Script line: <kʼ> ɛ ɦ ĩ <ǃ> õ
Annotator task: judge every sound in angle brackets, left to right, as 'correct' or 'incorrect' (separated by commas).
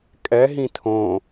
correct, incorrect